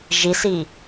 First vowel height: high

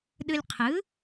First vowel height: high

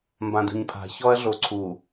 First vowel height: low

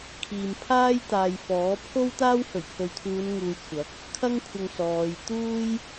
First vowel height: high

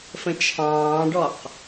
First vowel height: mid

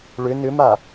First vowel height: high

